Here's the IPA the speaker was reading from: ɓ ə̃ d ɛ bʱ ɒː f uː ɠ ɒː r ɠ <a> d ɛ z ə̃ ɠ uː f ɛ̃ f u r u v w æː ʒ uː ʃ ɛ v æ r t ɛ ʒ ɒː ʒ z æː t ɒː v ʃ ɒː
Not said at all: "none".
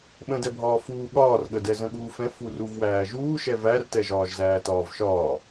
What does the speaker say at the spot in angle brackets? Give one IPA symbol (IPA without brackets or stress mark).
ə